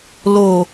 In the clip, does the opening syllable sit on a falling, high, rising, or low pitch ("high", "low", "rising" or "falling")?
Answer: low